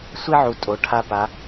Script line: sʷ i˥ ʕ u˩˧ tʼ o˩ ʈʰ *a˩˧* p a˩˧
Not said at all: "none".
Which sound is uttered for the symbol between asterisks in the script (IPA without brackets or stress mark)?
a˧